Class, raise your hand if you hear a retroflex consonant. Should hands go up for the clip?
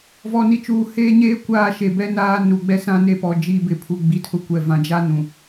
no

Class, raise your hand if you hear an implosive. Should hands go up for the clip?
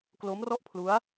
no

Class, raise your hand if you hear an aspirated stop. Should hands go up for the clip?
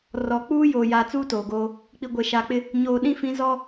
no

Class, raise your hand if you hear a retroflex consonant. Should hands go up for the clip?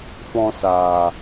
no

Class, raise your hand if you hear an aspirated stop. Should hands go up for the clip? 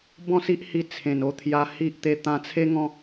yes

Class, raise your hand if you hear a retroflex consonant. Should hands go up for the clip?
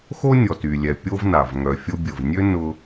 no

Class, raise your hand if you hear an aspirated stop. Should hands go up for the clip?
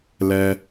no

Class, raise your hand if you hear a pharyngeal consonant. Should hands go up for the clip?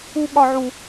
yes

